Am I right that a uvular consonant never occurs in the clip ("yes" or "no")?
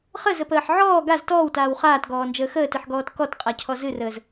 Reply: no